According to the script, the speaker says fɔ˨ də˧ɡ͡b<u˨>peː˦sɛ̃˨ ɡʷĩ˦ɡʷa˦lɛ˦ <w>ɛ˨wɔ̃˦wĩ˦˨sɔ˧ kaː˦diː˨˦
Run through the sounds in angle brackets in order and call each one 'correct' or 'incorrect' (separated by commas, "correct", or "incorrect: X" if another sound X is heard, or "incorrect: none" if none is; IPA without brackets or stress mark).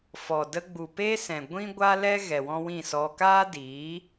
correct, incorrect: ɣ